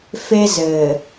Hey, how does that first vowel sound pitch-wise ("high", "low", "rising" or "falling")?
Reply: high